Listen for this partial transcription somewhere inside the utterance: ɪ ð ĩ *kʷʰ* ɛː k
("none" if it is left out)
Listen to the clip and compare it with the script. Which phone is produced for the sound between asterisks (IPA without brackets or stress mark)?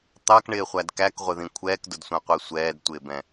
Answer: kʷʰ